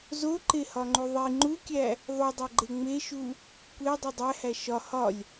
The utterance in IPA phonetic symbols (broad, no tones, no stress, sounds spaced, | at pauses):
z o ǃ e h ɒ ŋ͡ǃ u ðˤ i ŋ͡ǃ u kʲ æ | ðˤ u dˤ æ ɡ͡ǃ e ŋ͡m e ʃ u | kʷ e dˤ i dˤ æ h æ ʃ ɒ h ɒ lʲ